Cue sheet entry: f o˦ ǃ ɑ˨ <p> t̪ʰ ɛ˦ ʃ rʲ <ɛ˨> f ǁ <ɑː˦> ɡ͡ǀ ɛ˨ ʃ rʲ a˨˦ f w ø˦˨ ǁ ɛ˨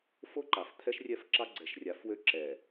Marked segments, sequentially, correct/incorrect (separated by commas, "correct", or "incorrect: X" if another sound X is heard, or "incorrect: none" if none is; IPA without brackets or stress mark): incorrect: f, incorrect: ɛ˦˨, incorrect: ɑ˦